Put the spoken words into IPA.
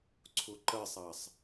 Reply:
ǀʰ ʊ ǃ ɜ sˤ ɑ sˤ

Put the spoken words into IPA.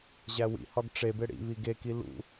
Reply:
ʑ æ w ḭ h ɒ ɡ ʈ͡ʂ e b e ɽ ḭ β i ɡ e k i l ṵ

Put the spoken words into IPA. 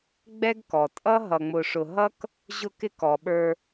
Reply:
ɡ͡b ɛ˥ ɡ k ɔ˩ tʼ ʌ˥ ɦ ʌ˨ ŋ͡m ʊ˨ ʂ ʊ˨ ɦ ʌ˥ k | ʑ ʊ˦ k ɪ˦ k ɔ˩ ɓ ə˞˨

